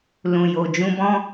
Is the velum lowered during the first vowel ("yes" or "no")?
yes